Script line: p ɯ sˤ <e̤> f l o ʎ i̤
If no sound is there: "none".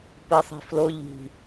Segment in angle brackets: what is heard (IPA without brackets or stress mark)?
e̤